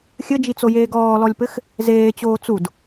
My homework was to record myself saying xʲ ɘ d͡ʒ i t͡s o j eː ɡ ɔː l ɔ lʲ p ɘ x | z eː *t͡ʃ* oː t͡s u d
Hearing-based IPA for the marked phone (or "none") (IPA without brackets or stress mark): t͡ɕ